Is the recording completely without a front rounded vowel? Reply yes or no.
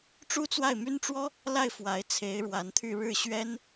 no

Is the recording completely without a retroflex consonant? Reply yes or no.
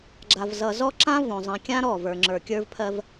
yes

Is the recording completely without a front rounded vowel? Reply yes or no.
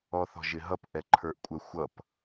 yes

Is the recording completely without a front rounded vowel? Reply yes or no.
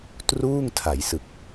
yes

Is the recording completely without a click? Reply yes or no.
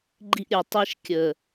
no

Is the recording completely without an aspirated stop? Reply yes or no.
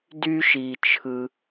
no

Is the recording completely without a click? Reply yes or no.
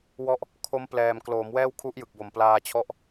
yes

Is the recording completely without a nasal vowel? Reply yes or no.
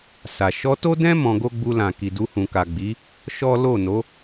no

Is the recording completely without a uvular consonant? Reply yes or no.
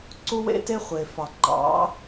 no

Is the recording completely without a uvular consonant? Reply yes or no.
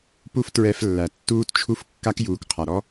no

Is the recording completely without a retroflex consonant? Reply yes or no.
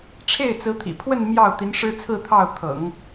no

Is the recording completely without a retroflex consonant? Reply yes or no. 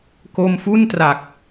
yes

